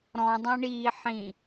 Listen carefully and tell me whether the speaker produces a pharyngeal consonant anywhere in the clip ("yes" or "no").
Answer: yes